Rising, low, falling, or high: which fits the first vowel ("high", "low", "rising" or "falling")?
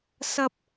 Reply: high